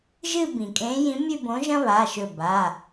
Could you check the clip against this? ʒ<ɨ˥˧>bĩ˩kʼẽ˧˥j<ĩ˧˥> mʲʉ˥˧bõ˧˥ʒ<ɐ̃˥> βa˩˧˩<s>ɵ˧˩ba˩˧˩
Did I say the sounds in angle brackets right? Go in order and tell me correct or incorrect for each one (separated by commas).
correct, correct, correct, incorrect